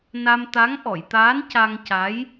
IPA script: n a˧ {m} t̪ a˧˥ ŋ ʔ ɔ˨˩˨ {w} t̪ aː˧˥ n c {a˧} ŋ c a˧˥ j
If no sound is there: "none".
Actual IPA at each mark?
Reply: m, j, a˧

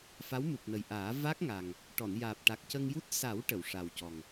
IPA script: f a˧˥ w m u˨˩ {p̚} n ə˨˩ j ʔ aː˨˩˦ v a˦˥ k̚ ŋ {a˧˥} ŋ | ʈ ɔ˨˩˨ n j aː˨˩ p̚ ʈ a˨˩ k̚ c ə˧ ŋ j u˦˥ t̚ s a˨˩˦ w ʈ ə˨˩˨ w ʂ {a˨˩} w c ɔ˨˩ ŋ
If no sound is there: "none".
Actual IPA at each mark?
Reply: p̚, a˨˩, a˨˩

